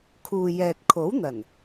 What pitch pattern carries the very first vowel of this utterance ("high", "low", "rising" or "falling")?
low